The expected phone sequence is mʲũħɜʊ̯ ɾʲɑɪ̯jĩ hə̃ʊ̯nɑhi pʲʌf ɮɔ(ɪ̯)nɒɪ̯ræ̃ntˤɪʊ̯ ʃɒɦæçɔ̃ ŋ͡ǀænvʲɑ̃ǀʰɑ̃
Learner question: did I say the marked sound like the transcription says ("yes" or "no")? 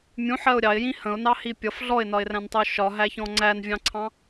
yes